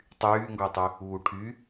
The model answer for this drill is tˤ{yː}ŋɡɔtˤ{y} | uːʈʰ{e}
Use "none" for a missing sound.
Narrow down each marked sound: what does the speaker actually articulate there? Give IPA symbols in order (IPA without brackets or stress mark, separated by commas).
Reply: yː, y, y